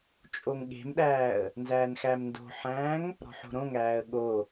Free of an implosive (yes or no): no